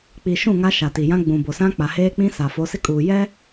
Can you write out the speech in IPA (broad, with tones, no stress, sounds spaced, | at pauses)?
k͡p i˨ ʃ ũ˦˨ ŋ a˦ ʃ a˨ t i˨ j ã˦ ɡ͡b ũ˨ b o˨ s ã˦ k͡p a˨ h eː˦ k͡p ĩ˦ s a˨ f o˨˦ s ɪ˦ kʼ uː˨ j ɛ˦